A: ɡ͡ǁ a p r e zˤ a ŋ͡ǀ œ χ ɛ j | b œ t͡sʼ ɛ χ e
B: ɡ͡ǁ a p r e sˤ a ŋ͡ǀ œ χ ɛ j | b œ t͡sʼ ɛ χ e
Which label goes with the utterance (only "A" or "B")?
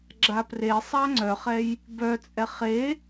B